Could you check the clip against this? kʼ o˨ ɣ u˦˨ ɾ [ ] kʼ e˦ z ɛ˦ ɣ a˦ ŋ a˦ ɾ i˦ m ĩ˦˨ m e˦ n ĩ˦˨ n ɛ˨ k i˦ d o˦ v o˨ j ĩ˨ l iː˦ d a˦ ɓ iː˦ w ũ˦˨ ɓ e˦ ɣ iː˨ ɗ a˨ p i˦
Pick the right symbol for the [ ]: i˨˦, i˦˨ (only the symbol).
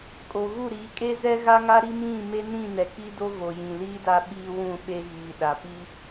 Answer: i˨˦